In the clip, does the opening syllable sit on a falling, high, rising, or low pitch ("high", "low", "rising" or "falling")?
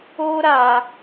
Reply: high